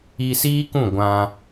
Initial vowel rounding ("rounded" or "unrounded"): unrounded